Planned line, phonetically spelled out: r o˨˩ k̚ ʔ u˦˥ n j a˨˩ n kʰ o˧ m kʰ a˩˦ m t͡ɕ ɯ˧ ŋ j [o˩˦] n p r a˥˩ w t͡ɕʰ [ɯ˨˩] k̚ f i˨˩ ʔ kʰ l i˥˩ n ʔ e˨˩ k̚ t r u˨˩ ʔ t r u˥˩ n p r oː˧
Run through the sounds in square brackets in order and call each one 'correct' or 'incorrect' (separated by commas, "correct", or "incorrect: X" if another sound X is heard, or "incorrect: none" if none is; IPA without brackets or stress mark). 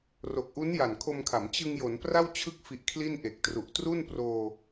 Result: correct, incorrect: ɯ˦˥